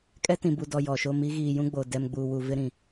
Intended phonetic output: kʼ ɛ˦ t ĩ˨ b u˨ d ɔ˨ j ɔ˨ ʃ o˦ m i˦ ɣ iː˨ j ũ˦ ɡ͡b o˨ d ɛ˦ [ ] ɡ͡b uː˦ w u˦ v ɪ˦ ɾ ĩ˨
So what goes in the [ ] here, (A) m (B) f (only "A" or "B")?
A